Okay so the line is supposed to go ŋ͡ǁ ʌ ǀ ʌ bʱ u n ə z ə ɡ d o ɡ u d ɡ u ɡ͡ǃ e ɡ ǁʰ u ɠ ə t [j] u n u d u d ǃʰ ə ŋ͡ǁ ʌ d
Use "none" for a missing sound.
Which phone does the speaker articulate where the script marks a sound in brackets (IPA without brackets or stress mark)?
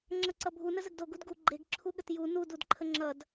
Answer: j